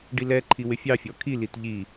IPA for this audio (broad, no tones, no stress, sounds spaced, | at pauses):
ɖ i l ɛ ǃʰ i w ɪ fʲ ɑ fʲ ɔ kʰ i l i t ʎ i